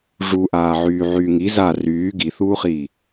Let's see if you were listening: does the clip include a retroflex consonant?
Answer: yes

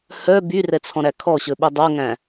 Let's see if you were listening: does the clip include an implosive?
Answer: yes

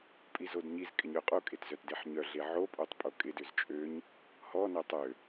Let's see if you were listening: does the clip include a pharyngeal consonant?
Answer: yes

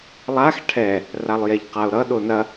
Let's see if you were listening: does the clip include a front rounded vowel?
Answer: no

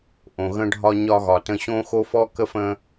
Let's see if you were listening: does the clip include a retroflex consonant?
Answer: yes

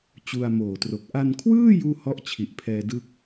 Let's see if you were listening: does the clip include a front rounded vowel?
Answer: no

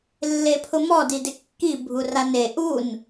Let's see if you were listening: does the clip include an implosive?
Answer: no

